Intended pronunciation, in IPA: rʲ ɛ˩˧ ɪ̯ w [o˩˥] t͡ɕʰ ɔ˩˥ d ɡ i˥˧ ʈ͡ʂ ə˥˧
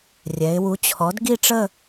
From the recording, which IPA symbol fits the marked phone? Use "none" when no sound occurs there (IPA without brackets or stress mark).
u˩˥